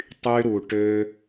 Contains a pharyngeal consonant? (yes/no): no